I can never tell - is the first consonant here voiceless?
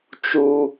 yes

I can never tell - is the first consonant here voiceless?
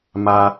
no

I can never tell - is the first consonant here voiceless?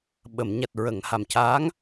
no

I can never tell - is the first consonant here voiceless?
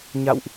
no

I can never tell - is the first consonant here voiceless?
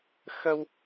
yes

